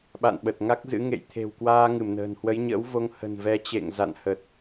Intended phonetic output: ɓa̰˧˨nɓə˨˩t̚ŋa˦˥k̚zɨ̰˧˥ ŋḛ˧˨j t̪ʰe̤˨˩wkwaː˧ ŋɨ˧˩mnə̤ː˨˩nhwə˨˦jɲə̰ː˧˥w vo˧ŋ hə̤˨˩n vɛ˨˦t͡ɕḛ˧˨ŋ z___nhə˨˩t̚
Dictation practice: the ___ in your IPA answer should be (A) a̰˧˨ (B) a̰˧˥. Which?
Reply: A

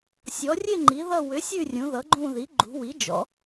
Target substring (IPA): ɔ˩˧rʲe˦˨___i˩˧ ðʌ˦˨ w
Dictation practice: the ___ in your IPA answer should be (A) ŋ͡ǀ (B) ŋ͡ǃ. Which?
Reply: B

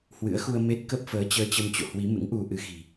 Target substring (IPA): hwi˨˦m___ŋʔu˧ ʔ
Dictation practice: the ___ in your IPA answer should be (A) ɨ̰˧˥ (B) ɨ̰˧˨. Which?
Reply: A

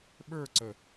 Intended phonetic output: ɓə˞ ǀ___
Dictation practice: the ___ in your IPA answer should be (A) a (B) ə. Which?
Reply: B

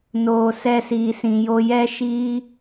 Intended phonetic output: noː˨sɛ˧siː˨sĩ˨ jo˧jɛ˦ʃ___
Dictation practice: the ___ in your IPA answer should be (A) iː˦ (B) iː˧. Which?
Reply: A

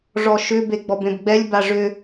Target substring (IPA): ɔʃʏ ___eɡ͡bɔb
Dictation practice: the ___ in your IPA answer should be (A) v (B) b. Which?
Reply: B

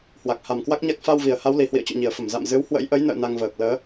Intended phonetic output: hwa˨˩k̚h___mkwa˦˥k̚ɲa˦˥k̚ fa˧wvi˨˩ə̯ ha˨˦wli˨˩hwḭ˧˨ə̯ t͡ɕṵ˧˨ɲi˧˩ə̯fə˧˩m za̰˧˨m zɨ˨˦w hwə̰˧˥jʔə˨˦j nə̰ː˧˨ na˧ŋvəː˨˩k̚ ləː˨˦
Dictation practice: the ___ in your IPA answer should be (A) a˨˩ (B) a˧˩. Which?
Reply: A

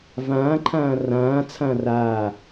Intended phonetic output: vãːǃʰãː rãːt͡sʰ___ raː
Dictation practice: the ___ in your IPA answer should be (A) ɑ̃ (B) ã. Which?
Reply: B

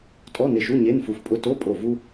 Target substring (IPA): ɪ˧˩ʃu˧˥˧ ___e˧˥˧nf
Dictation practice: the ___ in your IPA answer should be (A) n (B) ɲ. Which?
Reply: B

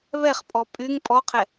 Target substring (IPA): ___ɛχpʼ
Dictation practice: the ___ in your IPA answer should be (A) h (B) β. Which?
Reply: B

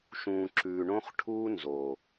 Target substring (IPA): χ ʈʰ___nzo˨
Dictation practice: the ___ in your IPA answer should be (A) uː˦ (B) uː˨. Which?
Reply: A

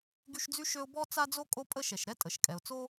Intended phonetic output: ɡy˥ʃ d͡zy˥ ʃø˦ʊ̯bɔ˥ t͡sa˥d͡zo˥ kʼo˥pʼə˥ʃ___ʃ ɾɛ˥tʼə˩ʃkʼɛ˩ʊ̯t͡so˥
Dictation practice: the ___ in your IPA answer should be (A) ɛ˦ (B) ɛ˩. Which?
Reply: B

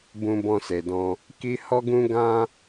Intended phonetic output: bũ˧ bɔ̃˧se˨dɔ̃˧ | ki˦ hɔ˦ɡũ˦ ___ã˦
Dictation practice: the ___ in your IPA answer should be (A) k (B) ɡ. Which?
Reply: B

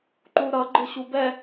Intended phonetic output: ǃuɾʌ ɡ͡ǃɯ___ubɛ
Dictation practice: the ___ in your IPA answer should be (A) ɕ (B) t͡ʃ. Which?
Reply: A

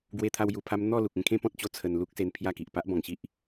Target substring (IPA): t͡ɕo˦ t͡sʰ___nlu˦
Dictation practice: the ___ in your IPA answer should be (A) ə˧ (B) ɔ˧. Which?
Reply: A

